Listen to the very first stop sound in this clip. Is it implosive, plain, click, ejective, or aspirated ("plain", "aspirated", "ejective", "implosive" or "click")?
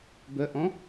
plain